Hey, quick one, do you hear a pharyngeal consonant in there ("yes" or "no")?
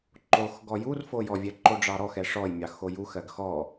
no